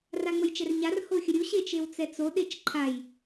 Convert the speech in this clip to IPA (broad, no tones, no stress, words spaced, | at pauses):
raŋ͡məjt͡ʃɛrɲar hoxʲəɾʲu ɕet͡ʃewt͡sɛt͡so ɗet͡ʃǃʰaj